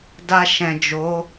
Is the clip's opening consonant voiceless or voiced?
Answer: voiced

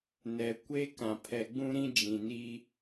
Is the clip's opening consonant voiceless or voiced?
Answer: voiced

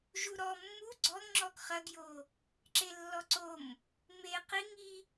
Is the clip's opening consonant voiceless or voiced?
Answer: voiced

